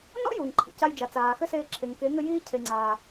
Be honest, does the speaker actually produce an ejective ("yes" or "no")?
no